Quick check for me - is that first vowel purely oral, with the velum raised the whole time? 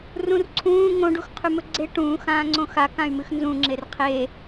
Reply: no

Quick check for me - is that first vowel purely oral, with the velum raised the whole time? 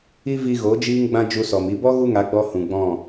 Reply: yes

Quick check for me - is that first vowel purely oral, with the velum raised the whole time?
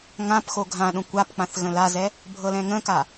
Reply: no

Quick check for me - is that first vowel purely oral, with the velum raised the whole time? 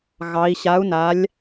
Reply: yes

